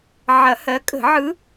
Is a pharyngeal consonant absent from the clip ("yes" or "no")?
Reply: no